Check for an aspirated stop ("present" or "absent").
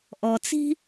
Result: absent